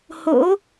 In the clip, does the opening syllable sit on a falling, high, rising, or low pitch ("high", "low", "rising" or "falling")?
rising